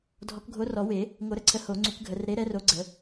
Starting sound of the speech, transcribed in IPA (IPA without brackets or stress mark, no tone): dʱ